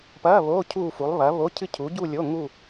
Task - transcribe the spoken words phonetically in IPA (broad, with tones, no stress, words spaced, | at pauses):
pɐː˧˥˧ βoː˧˥˧ cʰuː˥˧fu˨˥lˠ βɐ˨˥βo˧˥˧cʰɨ˥˧ cʰu˨˥ɟu˥˧lʲo˧˥˧ ŋu˥˧